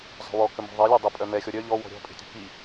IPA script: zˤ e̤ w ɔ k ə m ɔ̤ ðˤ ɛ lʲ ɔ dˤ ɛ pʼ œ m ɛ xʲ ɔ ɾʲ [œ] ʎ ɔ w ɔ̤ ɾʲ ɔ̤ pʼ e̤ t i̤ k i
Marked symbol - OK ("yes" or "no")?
yes